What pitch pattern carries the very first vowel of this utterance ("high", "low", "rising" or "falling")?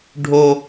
high